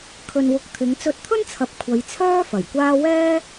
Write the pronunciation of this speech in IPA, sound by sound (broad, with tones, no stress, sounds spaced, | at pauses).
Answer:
kʰ ɵ˧ n w ʊ˧ k̚ t̪ʰ ɪ˨˧ ŋ t͡s ɵ˧ t̚ t̪ʰ ɵ˥ n t͡sʰ ɐ˨ p̚ kʷʰ ɐ˨˧ j t͡sʰ œː˥ f ɐ˨˩ j kʷ aː˥ w ɛː˥